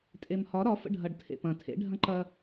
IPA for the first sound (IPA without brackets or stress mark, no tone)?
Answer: tʼ